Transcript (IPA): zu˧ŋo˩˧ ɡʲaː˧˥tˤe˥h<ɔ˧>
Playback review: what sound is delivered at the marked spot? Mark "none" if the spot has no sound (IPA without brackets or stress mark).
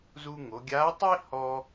ɔ˧